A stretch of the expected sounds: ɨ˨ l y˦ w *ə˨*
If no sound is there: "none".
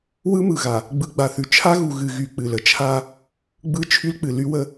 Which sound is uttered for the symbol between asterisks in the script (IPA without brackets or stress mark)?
ə˦